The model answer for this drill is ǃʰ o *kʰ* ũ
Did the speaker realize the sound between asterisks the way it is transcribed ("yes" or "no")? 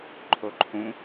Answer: no